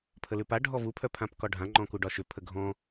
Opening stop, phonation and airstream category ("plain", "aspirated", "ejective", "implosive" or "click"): aspirated